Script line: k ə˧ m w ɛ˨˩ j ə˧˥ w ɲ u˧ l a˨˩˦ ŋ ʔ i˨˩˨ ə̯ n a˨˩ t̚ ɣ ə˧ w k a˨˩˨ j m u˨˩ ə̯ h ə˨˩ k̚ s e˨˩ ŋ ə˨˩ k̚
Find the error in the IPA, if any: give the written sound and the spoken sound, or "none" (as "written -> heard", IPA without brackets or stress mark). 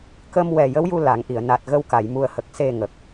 ɲ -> j